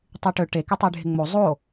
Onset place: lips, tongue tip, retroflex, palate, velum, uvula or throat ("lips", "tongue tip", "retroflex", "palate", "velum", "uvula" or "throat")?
tongue tip